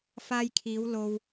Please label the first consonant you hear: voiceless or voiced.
voiceless